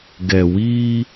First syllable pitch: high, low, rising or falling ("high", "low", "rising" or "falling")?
low